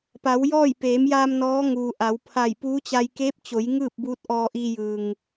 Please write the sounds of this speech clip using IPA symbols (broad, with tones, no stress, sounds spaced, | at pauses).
p a˩˧ w j ɔː˥˨ j p eː˩˧ m j aː˧ m n ɔː˧˥ ŋ uː˩ ʔ a˩˧ w pʰ a˧˩ j p uː˧˥ t͡ɕ a˧ j k eː˧˥ p̚ t͡ɕ o˩˧ j ŋ ɯː˥˨ p̚ b uː˧˥ t̚ ʔ ɔː˧ ʔ iː˧ j ɯː˩ ŋ